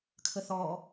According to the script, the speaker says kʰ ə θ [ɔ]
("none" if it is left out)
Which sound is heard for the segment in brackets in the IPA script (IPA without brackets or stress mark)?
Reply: ɔː